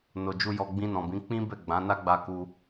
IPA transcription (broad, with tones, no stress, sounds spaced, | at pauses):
n o˧ d͡ʒ u˦ j ɔ˧ ɡ͡b ĩ˧ n ɔ̃˨ b ĩ˨˦ k͡p ĩ˦ b ɛ˦˨ ɡ͡b ã˨˦ n a˦ ɡ͡b a˧ k u˧